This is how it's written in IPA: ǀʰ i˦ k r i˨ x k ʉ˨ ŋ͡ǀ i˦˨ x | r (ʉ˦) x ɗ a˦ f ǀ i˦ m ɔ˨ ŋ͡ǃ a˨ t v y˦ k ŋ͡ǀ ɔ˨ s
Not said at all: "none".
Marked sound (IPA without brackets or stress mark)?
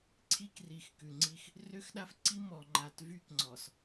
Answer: ø˦